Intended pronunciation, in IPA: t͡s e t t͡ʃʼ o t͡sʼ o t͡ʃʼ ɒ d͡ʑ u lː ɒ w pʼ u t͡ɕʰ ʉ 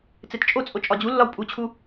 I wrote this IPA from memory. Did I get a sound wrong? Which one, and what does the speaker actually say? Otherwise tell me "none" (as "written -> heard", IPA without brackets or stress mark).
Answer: ʉ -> u